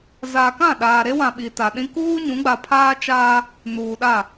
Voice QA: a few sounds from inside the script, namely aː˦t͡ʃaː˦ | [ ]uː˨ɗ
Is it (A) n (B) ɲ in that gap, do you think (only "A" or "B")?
A